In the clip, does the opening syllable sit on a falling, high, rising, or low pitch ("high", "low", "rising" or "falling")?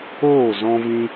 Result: falling